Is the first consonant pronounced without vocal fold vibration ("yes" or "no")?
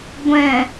no